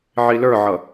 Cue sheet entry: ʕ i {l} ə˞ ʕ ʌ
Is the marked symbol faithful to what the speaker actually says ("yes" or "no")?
yes